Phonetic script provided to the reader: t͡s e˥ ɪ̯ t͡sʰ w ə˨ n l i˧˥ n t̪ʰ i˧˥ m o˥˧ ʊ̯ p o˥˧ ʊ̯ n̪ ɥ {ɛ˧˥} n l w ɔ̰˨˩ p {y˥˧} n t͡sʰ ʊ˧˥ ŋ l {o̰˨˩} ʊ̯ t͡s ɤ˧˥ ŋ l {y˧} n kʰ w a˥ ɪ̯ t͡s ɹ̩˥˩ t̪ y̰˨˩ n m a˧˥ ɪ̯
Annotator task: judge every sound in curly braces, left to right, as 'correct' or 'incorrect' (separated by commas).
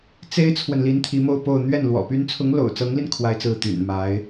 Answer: incorrect, incorrect, correct, incorrect